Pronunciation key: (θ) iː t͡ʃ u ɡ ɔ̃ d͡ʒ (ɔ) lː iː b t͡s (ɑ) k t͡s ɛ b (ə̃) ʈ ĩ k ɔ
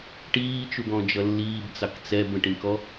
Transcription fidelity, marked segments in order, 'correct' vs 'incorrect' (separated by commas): incorrect, incorrect, correct, correct